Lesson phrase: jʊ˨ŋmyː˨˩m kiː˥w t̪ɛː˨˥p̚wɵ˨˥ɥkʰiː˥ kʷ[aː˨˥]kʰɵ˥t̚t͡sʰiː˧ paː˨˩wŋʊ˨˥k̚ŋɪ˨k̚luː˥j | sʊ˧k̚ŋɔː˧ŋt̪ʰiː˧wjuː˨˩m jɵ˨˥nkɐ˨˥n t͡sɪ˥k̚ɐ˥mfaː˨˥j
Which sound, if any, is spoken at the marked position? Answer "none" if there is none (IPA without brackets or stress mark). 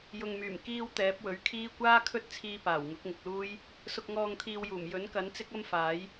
aː˥